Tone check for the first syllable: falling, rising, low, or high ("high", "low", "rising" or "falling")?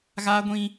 high